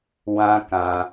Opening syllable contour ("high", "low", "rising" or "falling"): high